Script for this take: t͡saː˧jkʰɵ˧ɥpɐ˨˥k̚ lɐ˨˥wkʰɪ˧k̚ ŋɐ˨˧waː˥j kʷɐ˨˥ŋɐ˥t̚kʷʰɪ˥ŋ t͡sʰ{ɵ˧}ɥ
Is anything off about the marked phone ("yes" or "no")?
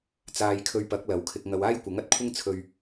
no